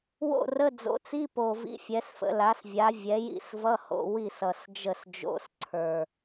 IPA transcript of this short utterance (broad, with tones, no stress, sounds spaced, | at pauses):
w o̰˥˩ r ə˧˥˧ d͡z o̰˩˥ t͡s i˧˥˧ p o˨˩ v ḭ˧˥˧ fʲ ɛ˩˥ s f ə̰˩˥ l a˩˥ s vʲ a˩˥ vʲ ɛ˩˥ j ḭ˥˩ s v ʌ˧˥˧ h o̰˥˩ w i˥˩ s ʌ˨˩ s d͡ʒ ə˥˩ s d͡ʒ o̰˧˥˧ s ǀʰ ə˞˨˩